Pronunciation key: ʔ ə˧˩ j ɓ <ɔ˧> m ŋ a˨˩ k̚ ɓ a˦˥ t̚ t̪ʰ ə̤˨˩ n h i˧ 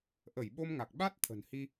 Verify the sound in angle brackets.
incorrect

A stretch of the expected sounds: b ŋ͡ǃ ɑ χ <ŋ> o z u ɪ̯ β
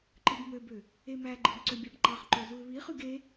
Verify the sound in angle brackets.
incorrect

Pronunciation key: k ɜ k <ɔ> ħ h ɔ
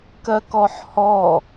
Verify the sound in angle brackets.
correct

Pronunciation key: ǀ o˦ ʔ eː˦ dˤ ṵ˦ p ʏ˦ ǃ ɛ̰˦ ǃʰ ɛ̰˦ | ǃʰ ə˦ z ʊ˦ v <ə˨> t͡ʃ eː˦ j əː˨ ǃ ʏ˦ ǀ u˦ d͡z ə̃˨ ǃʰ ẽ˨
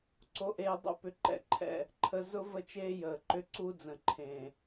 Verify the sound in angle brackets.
incorrect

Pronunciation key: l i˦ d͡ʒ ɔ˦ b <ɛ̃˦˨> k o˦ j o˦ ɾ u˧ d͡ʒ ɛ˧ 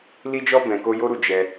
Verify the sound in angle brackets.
incorrect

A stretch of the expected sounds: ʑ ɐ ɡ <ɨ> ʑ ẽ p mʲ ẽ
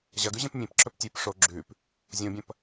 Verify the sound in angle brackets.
incorrect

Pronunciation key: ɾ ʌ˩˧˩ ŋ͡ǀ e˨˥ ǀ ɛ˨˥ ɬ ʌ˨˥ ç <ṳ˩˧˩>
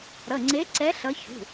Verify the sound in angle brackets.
correct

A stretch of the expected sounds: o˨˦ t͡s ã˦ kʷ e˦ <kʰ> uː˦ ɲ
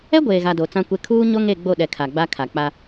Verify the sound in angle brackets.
correct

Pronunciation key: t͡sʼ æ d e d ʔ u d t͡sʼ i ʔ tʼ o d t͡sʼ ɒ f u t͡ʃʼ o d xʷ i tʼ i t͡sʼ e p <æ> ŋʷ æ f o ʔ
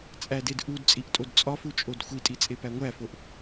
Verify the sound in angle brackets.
correct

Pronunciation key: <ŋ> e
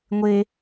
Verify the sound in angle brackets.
incorrect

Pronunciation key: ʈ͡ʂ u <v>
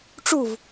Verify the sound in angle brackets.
correct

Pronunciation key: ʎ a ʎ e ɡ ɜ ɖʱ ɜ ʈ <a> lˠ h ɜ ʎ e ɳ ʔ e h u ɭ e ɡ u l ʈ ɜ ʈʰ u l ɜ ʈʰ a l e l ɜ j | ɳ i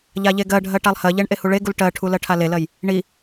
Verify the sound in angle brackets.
correct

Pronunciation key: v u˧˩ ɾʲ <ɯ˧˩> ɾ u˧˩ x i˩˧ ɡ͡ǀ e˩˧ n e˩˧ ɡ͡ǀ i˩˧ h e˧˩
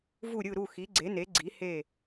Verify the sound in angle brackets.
correct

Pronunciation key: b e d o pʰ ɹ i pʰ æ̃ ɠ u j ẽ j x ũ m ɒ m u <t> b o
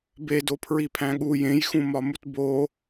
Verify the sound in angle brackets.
correct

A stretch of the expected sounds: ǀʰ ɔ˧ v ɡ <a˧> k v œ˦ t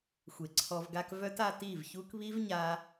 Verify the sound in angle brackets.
incorrect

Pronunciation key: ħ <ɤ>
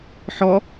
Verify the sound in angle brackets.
incorrect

